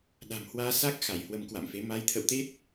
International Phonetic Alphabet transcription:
ɗ a̤˨˩ m h w aː˧ s a˦˥ k̚ x a˧˩ j h w ə˧ m k w a̰˧˨ m f e˨˦ m a˨˦ j t̪ʰ ə̰˧˨ w t̪ e˦˥ t̚

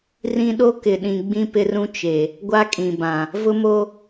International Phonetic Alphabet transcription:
r ĩ˦ ɗ o˦ k ɪ˨ ɗ ĩ˨ ɡ͡b ĩ˦ p ɪ˦ r ũ˦ t͡ʃ e˨ | ɡʷ a˦ kʼ ĩ˨ b ã˨ | v ʊ˦ m o˦

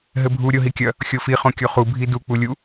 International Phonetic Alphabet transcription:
ɦ ɘ bʱ u ɾʲ o ɦ i kʲ ɐ | xʲ o f i χ õ kʲ o χ u bʱ i d u k͡p u lʲ u

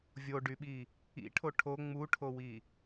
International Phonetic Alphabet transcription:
vʲ o ɖ y ɓ i | ḭ ʈʰ o ʈʰ o ŋ͡m u ʈʰ o w i

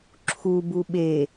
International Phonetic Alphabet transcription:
ǁʰ u b u ɓ e

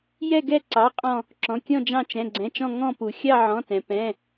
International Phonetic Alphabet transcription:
j ɛ˦˨ ɡ ɛ˦˨ ǀ ɑ˩˧˩ qʼ ɔ̃˦˨ | ǁ ɔ̃˩˧˩ kʲ ɔ̃˦˨ d͡ʒ ɑ̃˦˨ t͡ʃ ɛ̃˩˧˩ ɡ͡ǀ ɛ̃˩˧˩ t͡ʃ ɔ̃˦˨ ŋ ɔ̃˦˨ p u˩ xʲ ɑ˦˨ ʕ ɔ̃˩˧˩ t ɛ̃˩ p ɛ̃˩˧˩

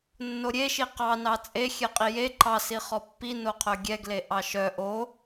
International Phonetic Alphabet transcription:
nː o ɾʲ e ʃ i q ɑ n ɑ t͡sʼ e xʲ ɛ qʼ i j e ǃ ɑ s i χ ɔ pː i n o qʰ œ ɡʲ ɛ ɡ l e ʔ ɑ ʃ œ ʔ o

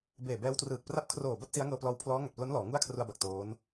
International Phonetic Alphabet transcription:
b eː˨˩ b ɛː˦˥ w t r ɯː˨˩ k̚ p r a˦˥ p̚ kʰ r oː˨˩ b a˥˩ t̚ s i˦˥ a̯ ŋ ɤː˧ p l ɔː˧ w pʰ l ɔː˦˥ ŋ a˨˩ t̚ p l o˦˥ n l ɔː˩˦ ŋ u˥˩ a̯ kʰ r u˧ a̯ b a˨˩ k̚ t oː˦˥ n

